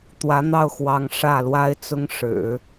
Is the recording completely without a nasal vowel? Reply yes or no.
yes